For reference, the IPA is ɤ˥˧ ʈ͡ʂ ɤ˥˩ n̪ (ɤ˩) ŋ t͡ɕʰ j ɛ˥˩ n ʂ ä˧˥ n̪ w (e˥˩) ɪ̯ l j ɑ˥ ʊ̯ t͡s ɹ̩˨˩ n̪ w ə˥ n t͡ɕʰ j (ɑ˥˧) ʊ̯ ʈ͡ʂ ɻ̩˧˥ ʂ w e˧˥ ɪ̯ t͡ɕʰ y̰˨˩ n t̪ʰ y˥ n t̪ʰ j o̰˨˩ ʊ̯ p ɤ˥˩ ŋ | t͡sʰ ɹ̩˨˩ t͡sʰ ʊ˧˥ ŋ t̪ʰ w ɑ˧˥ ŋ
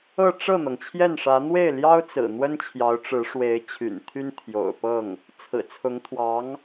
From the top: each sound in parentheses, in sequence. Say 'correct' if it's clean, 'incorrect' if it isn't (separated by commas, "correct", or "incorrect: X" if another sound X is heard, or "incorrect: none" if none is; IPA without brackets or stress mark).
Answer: correct, correct, incorrect: ɑ˧˥